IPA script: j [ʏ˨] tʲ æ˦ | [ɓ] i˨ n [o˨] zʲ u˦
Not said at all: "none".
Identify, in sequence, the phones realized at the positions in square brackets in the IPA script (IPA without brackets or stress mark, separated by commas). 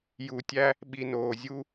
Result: u˨, ɓ, oː˨